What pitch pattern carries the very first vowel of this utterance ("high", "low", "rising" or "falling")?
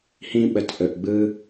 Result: high